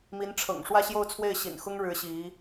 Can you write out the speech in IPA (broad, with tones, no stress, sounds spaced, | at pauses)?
m i˧˥ n ʈ͡ʂʰ ɤ̰˨˩ ŋ ʂ w ä˥˧ ɕ j o˥˧ ʊ̯ t͡sʰ w e˥˩ ɪ̯ ɕ ḭ˨˩ n x ʊ˥ ŋ ɻ ɻ̩˧˥ ɕ i˧˥